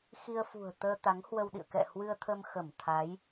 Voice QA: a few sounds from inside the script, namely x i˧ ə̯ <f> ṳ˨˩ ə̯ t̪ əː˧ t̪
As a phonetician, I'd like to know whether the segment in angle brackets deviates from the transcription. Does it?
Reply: no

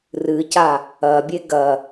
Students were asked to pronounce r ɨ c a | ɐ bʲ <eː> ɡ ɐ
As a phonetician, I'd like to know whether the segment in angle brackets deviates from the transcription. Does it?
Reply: yes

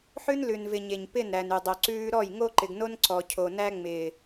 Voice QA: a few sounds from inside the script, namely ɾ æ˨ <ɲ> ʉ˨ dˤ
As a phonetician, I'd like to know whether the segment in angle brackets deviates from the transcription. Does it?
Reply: yes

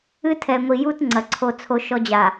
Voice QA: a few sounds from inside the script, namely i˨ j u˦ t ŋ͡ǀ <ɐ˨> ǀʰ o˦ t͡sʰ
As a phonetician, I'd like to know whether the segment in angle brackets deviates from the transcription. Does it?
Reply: no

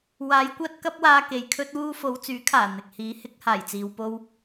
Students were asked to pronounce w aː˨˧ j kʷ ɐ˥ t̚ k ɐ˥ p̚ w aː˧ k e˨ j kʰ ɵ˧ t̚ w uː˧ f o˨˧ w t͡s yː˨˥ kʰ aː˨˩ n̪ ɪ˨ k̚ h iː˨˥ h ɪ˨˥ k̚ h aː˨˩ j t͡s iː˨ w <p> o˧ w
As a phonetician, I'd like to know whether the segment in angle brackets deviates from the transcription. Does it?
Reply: no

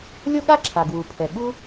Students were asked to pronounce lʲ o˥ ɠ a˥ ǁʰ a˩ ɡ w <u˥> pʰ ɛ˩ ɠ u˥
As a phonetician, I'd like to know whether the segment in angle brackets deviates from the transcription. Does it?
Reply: yes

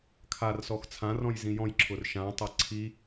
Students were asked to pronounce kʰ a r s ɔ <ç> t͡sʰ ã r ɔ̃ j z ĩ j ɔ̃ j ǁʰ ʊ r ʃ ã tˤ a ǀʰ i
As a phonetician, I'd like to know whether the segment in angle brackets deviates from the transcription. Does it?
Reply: yes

